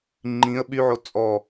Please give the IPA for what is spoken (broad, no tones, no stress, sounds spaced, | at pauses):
ŋ͡ǃ ĩ ə̯ ɓ y ʕ o t͡sʼ ɔ